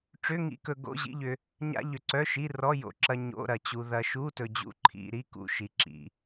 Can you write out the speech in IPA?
ʈ͡ʂʏ˧˥˧ŋḭ˧˥˧kɵ˧ ɡo̰˧˥˧ʑḭ˧˥˧ʎʏ˧ | ɲa̰˧ ʎʏ˧ǀœ˧˥˧ʃi˧˥˧rɔ˧˥˧ jo̰˧ǁɐ˧ ɲo̰˧˥˧ɾɐ˧t͡ɕu˧ ðɐ˧ʃu˧˥˧tɵ˧d͡ʑṵ˧˥˧ ǃʰḭ˧˥˧ ɾi˧˥˧kṵ˧˥˧ʃi˧ ǁḭ˧

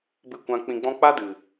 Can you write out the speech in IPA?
bɨ˨kʷã˨ k͡pĩ˨ɡ͡bɔ̃˧k͡pa˦ dɨ˨

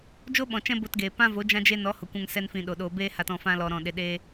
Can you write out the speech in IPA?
d͡ʒo˦ɓɔ̃˨ t͡ʃɛ̃˦ bo˧tɡeː˨ pã˦vo˨˦ d͡ʒã˦d͡ʒe˦ nɔ˨˦ho˨kʷɛ̃˧ŋ sɛ˦nfĩ˧ɗo˨ɗoː˧ beː˦ha˧tɔ̃˦˨fã˦ lɔ˧ɾɔ̃˦˨ɗe˧ ɗe˦

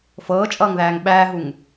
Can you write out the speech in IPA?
fɤːt͡ʃʼʌːŋðæːŋ ɓæːɦuŋ

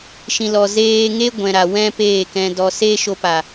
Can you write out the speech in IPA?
ʃĩ˨lɔ˨ zeː˧ŋe˦ ɡʷɛ̃˨ɾa˨ wɛ̃˦peː˦˨kɛ̃˧dɔ˧ se˦ʃo˧pa˨

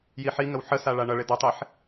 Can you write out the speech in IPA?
jiħiŋəw ħəsa ɭaɳʌɭɪ dotˤiħ

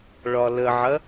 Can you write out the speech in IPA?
ɭɒləʕɐ

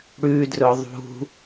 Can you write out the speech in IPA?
ɽʉdrʊ ðˤṳ

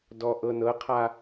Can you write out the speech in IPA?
dɔʔɤnɤqʰa

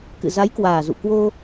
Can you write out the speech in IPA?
kɨ̰˧˨ za˨˦jkwaː˨˩ zṵ˧˨ kwo˧

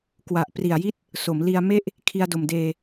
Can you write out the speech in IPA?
kwa˨˩ʔ pri˨˩a̯ji˥˩t̚ | so˩˦m li˧a̯me˥˩ʔ | kʰi˧a̯do˨˩mdeː˧

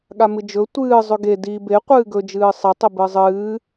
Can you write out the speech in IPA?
ɠamɨd͡ʒɵ tʷɨːzˤʉ ɡe di beqʷɨː ɡɵd͡ʒɨː sˤi tˤibɨzˤɨː

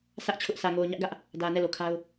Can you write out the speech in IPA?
sä˦ʔt͡ɕʰʊ˦ʔ sä˨ŋo˨ʊ̯ɲä˦ʔɡä˦ʔ | dä˨ nɛ˦˨lo˨kʰa˦ʊ̯

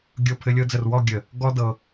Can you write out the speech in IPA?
ɡʲɤ˥˧pʰɘ˥lʲɤ˥d͡zə˥˧r wɔ˥˧ɡʲə˧˩ | ɡɔ˥dɤ˧

